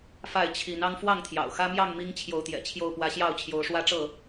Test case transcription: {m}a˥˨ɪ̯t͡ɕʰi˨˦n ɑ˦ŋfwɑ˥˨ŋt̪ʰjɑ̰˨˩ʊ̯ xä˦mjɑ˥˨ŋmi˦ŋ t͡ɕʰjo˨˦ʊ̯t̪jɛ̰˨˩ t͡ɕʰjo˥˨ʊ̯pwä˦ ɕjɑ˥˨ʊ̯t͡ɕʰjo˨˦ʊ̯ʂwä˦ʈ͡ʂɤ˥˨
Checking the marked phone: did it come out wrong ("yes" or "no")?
yes